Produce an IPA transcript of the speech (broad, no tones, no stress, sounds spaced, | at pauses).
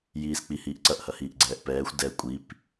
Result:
j iː s k͡p i h iː ʔ ǀ ɐ ʔ h ɐ h iː ʔ ɡ͡ǀ ɛː ʔ p ɛː xʷ d ɛ kʷʼ i p